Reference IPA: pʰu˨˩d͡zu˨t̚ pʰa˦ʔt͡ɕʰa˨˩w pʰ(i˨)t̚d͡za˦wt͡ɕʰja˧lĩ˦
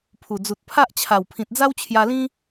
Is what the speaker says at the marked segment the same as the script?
no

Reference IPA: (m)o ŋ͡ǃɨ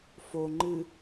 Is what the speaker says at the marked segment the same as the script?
no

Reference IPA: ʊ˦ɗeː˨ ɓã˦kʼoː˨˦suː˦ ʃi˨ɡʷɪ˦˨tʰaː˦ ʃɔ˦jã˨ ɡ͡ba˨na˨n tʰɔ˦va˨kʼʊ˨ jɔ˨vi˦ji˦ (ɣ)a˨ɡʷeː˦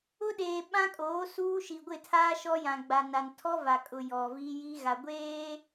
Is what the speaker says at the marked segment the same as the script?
yes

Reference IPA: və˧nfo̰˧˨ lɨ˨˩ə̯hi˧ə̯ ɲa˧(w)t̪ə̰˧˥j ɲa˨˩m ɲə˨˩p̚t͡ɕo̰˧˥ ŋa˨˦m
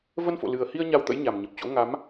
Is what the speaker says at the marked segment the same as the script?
yes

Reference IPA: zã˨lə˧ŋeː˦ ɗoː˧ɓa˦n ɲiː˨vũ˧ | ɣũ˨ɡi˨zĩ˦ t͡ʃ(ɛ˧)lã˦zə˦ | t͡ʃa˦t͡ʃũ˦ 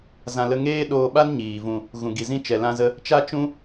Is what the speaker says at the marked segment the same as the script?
yes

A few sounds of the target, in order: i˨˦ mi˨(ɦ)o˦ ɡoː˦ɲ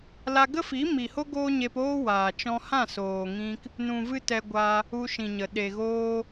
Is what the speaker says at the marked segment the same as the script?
no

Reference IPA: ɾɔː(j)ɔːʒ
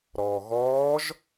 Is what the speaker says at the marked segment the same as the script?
no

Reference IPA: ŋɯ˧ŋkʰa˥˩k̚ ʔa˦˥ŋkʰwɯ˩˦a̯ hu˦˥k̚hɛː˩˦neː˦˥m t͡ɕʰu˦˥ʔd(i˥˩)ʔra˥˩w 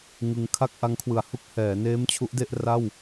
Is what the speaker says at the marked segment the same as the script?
no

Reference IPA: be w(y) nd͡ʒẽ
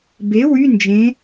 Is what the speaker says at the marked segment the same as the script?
yes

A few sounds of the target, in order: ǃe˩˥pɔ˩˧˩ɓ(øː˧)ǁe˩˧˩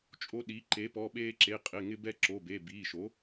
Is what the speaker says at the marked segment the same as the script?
no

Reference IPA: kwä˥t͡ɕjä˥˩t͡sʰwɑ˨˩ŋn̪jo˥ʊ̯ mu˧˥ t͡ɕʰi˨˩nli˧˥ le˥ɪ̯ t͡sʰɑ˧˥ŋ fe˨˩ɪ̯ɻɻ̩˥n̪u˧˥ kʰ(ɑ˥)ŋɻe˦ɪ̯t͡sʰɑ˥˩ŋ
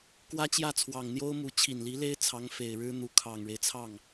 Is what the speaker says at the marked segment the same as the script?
no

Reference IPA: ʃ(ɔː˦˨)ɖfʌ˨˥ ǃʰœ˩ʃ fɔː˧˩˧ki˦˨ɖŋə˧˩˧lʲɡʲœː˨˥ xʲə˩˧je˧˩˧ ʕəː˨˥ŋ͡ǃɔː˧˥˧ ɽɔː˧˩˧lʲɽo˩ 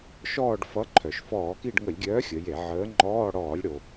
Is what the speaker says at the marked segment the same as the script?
yes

